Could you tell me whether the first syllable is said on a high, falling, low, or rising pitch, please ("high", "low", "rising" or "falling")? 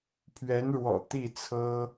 rising